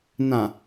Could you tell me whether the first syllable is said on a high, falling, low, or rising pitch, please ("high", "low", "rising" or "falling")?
low